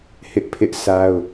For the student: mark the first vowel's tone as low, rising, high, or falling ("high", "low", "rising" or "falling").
high